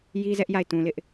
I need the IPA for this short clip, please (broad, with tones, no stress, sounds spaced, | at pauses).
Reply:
j i˦ z ɛ˦ ʔ j a˦˨ ɪ̯ t ũ˨ l ɪ˦ ʔ